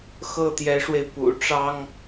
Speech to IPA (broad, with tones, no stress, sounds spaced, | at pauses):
x ɤ˥˩ t̪ j ɛ˧˥ ʂ w e˧ ɪ̯ p ṵ˨˩ ʈ͡ʂ ɑ˥ ŋ